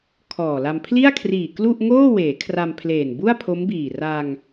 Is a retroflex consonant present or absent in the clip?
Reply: absent